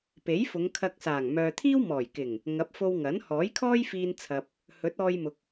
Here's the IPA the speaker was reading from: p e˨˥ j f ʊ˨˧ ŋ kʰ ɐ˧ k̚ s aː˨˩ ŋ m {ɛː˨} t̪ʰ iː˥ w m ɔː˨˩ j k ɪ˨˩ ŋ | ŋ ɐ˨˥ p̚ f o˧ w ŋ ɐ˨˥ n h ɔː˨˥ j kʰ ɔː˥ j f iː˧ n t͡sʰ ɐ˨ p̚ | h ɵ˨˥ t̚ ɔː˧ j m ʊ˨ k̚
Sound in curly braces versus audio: incorrect: œː˨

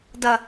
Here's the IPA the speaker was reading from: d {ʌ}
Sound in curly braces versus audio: correct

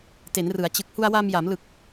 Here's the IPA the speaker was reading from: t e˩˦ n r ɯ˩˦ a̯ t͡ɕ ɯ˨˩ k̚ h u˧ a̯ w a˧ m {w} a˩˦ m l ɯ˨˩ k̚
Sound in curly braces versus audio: incorrect: j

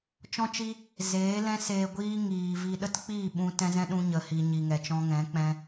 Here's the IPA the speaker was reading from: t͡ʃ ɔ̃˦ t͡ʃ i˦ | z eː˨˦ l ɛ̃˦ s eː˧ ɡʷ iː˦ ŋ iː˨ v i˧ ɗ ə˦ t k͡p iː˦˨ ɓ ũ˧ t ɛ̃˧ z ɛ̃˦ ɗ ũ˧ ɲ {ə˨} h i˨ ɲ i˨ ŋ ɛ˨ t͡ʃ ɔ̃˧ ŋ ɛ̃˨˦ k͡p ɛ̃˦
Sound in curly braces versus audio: correct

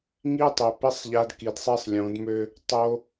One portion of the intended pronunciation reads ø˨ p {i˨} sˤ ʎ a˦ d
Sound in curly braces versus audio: incorrect: i˦˨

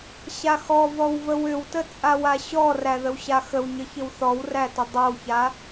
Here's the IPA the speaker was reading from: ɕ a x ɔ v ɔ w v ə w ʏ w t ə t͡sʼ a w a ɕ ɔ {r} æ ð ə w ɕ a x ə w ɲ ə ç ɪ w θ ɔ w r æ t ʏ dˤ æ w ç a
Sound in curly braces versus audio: correct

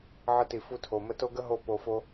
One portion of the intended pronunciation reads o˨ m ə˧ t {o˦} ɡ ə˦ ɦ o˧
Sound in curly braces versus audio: correct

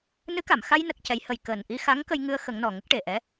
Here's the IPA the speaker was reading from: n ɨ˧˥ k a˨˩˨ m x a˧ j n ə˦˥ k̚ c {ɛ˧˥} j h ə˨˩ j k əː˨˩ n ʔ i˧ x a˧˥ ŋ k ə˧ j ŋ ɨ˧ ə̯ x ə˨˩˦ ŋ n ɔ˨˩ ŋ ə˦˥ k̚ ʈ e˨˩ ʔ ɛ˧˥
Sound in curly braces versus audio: correct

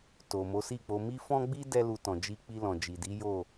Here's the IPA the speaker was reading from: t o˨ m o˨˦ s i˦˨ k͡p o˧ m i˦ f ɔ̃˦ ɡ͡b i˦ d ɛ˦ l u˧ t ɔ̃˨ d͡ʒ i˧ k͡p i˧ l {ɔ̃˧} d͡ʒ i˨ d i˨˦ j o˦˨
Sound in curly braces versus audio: incorrect: ɔ̃˨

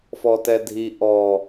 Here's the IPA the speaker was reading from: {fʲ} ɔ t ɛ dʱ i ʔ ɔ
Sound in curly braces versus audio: incorrect: f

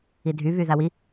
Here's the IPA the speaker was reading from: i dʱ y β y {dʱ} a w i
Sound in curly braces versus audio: incorrect: ð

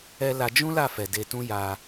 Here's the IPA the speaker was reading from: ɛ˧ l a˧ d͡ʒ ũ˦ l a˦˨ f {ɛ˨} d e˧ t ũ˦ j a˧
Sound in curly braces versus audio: correct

